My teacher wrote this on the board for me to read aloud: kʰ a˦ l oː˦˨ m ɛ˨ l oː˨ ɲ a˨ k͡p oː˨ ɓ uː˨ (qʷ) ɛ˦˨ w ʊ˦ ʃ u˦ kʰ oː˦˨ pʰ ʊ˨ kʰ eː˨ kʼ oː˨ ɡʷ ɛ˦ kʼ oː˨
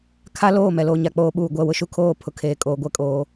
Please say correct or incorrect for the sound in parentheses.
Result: incorrect